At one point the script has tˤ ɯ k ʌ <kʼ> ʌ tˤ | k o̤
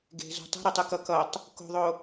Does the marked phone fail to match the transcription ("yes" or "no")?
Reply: yes